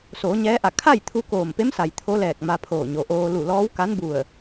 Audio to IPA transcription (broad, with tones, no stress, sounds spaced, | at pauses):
s oː˩˧ ɲ ɛː˧˥ ʔ a˧˩ kʰ a˥˨ j t̪ʰ u˧ k oː˧˩ m p e˧˥ m s a˩ j t̪ʰ o˧˥ l ɛː˧˩ k̚ m a˧ pʰ oː˧˩ ɲ o˩ ʔ oː˧ l u˧˩ l ɔː˧˥ w k a˧˥ n b u˧˩ ə̯